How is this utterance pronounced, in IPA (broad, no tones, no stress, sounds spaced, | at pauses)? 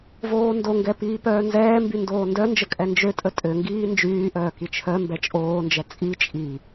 v oː n d o ŋ ɡ ɛ p iː p œː n z ɛː m b y n d oː n d œ n d͡ʒ ə kʼ ɛ n d͡ʒ ø tʼ ə tʼ ø ŋ ɡ iː n d͡ʒ yː ʔ œː k i t͡ʃʰ œ m b ɛ t͡ʃʼ oː n d͡ʒ ɛ t͡sʼ i t͡ʃʼ i